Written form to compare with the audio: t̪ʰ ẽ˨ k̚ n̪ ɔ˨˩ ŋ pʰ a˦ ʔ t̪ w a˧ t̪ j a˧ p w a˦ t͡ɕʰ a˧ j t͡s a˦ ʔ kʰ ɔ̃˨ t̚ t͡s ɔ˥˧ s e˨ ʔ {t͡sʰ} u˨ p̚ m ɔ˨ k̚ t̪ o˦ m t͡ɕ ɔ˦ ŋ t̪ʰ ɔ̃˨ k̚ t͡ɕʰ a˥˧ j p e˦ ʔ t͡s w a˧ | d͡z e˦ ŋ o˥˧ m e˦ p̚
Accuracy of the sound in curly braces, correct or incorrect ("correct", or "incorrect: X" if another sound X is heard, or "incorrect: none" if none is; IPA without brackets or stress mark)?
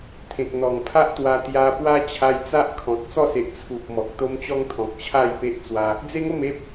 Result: correct